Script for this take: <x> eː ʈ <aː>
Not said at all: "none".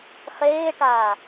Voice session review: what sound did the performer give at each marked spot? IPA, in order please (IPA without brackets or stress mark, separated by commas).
χ, aː